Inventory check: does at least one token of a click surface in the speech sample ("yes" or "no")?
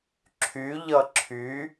yes